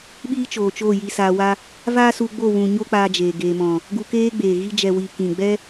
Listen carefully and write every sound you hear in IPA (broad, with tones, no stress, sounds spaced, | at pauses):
ɓ iː˦ t͡ʃ oː˨ t͡ʃ oː˦˨ j i˧ s aː˧ w a˦ | v aː˦ s u˧ ɡ͡b o˦˨ w ũ˨ ɲ o˦ k͡p aː˧ d͡ʒ eː˨ ɡ eː˨ m ɔ̃˨ | ɡ u˧ k eː˦ ɡ͡b eː˨ ɣ i˧ d͡ʒ ɛ˨ w i˨ k ĩ˨ ɡ͡b ɛ˦